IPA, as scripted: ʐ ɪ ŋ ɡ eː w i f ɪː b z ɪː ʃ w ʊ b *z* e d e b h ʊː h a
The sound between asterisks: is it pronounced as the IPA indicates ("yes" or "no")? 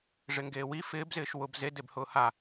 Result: yes